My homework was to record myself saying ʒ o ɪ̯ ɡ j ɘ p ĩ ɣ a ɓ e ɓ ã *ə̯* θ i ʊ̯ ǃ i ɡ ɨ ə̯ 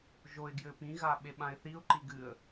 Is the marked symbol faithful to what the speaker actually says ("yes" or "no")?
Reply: no